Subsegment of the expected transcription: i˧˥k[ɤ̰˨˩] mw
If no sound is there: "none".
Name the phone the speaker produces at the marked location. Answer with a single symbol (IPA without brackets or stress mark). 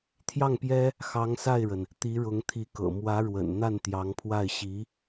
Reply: ɤ̰˨˩